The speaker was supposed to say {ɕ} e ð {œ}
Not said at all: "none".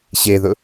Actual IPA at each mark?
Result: ɕ, ɵ

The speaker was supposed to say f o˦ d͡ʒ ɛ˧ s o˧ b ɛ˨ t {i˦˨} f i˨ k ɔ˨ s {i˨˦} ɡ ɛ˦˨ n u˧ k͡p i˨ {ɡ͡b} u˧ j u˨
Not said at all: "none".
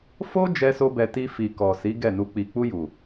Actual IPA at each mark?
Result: i˧, i˨˦, k͡p

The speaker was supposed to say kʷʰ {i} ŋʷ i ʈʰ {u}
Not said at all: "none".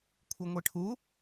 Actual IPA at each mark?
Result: i, u

